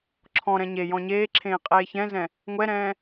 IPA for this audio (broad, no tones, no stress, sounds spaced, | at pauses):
ǁʰ ɔ̃ ɾ ɛ̃ ɲ e j ɔ̃ ɲ eː ǁʰ ẽː qʼ eː ç ɛ̃ z ɛ̃ | ŋʷ ɛ ɾ ɛ̃ː